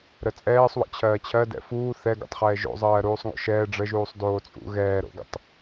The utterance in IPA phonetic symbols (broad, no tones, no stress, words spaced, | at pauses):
ɾət͡sʼɛːsˤwə̰ t͡ɕʰɜːt͡ɕʰɜdɛ̰ fuː θɛɡo̰tˤχɛː ʒo̰zˤɜː ɾuːsˤŋo̰ʃɛː ɖ͡ʐə ʒuːsˤdoːt͡sʼṵ ɣɛːɾo̰ɡə̰tˤ